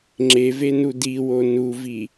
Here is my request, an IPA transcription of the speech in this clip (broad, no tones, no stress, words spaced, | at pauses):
ŋ͡ǁevenu diwo nuvi